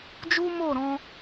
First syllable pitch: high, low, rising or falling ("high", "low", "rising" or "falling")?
high